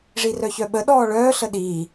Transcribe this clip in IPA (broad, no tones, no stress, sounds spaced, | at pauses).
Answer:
ʐ i r œ ç œ ɓ ə ɗ ɔː ɭ œː ɬ ə ɗ iː